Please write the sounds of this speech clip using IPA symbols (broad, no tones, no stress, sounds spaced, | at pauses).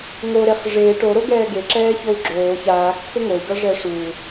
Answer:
ŋ o ɾ e χ ʐ e ʈ o ɾ o ɡ ɛː ɡ e ǁ ɛː ç o u̯ ɡ͡ǁ oː ç aː kː ə ŋ o y̯ ɡ ʌ ʐ ɛ ʂ u